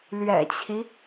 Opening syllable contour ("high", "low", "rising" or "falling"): low